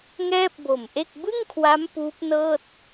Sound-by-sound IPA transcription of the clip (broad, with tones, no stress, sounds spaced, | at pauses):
ŋ ɛː˥˩ p̚ b o˨˩ m ʔ e˥˩ k̚ b ɯ˥˩ ŋ kʰ w a˦˥ m p uː˦˥ p̚ n ɤː˥˩ t̚